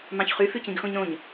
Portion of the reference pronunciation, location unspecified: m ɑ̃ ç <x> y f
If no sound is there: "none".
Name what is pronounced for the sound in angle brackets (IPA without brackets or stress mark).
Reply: χ